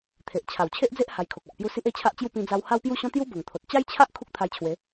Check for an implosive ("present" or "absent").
absent